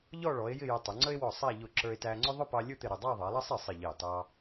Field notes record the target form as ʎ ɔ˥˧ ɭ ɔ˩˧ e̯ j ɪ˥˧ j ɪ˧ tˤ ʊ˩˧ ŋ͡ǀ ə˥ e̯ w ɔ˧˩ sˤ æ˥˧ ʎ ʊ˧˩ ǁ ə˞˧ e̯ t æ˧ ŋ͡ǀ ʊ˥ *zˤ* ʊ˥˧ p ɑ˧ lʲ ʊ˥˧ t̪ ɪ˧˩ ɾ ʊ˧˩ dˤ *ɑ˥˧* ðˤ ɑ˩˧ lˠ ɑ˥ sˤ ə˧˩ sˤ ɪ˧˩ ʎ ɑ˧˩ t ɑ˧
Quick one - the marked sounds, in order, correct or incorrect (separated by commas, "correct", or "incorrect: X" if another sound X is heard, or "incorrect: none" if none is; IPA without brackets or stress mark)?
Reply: incorrect: ðˤ, correct